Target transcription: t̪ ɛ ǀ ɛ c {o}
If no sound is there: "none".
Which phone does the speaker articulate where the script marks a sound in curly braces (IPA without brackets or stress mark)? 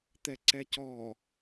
ɔ